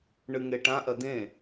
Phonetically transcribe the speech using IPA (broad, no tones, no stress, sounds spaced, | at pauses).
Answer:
ɳ ɨ ŋ e ʈ ã ʔ ɐ d ẽ